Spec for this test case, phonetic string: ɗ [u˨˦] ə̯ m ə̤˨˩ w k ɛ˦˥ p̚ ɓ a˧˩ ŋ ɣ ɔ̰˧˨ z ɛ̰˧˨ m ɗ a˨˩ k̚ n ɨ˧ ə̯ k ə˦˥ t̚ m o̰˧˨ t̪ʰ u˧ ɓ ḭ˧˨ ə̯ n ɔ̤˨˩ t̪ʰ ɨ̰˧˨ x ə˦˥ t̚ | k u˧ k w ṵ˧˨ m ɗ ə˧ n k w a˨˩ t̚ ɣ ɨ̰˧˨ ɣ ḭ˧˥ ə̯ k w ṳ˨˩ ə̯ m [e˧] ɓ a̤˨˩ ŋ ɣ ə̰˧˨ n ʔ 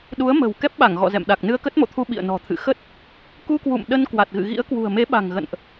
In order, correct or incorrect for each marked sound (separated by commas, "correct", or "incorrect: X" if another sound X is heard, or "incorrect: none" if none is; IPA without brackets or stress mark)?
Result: correct, incorrect: e˨˦